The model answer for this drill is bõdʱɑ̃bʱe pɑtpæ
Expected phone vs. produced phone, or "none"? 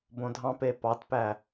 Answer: bʱ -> p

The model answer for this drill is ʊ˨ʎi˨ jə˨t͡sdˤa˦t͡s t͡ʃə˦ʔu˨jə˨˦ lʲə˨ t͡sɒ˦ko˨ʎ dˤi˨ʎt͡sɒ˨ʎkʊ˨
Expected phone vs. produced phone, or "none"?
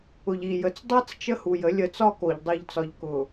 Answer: ʔ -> h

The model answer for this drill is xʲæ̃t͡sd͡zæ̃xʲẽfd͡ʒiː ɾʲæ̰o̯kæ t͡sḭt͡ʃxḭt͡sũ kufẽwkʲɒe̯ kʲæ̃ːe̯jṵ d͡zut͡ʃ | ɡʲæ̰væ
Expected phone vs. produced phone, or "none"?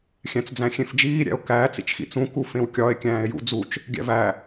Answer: none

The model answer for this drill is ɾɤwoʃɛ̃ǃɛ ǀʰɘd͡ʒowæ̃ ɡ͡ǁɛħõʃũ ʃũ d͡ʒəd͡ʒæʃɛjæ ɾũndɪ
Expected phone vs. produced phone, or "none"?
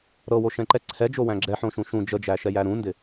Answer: ɘ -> ɛ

